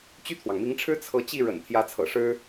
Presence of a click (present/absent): absent